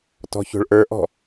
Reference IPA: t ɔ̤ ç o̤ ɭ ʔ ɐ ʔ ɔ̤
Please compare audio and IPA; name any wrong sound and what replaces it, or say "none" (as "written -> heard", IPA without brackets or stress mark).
ɐ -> ə˞